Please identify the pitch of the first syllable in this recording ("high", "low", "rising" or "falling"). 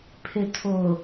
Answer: low